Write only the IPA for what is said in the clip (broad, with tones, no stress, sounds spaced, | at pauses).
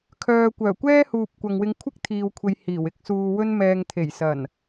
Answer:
kʰ œː˧ kʷ œː˨˩ kʷ ɛː˥ h uː˨ p̚ kʷ ɐ˨ ŋ w ɪ˧ ŋ kʷʰ ɪ˥ k̚ t̪ʰ iː˧ w kʷʰ e˧ j h iː˨˩ w ɪ˧ k̚ s uː˧ w ɵ˥ n m ɛː˧ ŋ t̪ʰ e˨˩ j s ɐ˨˩ n